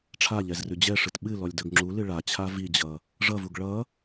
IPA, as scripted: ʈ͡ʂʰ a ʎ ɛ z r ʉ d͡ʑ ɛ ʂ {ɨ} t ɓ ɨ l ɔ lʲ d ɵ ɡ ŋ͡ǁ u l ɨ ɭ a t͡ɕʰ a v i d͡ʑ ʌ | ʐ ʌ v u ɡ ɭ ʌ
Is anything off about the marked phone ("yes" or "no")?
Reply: no